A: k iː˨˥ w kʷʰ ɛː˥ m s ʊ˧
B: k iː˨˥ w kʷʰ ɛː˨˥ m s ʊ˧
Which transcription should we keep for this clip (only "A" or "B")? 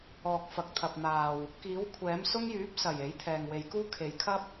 B